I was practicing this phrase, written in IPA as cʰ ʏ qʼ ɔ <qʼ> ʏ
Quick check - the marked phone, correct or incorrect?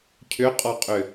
correct